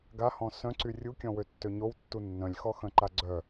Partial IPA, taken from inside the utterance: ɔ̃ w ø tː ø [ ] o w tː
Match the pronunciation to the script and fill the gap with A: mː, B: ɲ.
B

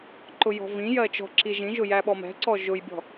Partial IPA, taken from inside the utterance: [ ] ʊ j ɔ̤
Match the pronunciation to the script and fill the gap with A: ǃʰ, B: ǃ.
B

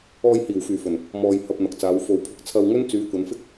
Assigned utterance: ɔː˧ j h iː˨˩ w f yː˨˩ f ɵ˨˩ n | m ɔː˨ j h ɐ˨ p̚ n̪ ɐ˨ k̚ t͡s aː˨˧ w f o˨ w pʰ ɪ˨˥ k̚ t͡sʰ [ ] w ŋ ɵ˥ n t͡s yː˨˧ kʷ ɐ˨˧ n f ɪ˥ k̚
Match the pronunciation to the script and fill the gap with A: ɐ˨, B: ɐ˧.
B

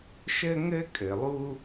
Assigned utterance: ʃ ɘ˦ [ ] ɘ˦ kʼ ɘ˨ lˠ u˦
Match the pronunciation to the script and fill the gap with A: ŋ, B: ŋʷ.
A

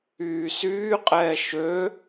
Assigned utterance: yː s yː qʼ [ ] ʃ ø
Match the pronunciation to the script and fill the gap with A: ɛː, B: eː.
A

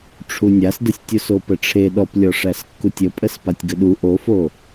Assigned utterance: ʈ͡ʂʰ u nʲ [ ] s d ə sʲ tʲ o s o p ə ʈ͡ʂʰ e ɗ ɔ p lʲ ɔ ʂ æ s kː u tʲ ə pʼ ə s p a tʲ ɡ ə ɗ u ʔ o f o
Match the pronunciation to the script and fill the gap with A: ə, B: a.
B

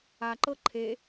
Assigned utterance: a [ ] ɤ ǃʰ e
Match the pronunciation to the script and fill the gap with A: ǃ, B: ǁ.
A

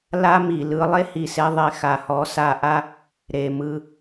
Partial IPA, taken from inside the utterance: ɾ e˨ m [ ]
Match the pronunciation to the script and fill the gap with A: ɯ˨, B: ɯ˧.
B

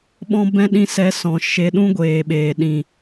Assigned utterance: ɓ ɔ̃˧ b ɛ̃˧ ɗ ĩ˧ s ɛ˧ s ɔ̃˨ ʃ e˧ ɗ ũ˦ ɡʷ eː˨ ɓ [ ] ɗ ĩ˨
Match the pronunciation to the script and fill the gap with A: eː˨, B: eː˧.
A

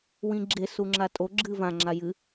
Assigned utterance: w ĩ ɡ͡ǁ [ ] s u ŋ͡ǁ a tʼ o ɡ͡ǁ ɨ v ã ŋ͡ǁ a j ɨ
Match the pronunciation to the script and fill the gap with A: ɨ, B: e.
B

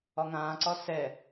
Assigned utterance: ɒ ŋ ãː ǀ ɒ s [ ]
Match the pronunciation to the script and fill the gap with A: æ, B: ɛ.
B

